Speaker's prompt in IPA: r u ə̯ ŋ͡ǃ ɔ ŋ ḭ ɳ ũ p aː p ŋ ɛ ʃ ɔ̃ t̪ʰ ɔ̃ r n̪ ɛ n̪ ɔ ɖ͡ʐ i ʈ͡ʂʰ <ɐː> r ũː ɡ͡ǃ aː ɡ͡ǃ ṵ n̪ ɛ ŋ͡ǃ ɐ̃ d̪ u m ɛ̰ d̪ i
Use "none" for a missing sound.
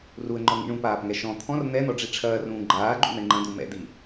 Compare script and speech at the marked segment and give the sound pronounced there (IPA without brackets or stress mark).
ɐː